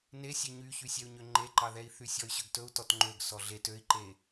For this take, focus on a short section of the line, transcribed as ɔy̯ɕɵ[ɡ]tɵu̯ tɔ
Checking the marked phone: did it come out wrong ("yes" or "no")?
no